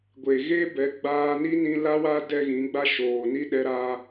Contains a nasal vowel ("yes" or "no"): yes